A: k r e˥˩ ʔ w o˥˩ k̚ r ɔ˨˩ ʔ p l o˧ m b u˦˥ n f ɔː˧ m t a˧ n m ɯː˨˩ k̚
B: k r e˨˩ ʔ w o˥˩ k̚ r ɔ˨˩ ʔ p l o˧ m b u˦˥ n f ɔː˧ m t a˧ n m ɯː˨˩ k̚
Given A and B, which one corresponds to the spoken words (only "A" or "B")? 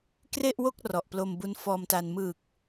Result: A